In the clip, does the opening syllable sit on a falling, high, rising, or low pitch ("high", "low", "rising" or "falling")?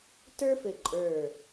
high